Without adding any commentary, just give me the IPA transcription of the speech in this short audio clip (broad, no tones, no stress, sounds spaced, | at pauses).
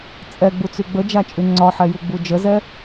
t͡sʼ ɛ ɡ͡b u t͡s y ɡ͡b ə d͡ʒ a t͡ʃʼ y ŋ͡ǀ ɒ ħ ɛ j u ɡ͡b u d͡ʒ ə z ɛ